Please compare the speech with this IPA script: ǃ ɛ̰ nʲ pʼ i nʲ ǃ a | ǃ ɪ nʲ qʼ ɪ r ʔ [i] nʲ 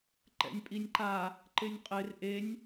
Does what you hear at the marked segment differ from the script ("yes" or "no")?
yes